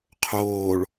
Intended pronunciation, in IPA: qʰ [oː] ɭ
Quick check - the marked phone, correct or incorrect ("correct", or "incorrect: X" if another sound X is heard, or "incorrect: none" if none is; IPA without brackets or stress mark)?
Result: correct